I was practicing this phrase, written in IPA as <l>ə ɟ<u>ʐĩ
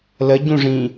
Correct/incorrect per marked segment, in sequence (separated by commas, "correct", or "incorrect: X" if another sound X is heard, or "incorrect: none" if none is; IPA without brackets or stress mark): correct, incorrect: ũ